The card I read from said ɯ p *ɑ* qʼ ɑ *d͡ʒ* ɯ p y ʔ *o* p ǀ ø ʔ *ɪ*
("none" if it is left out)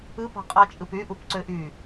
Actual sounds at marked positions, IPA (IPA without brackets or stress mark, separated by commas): ɑ̤, t͡ʃʼ, u, y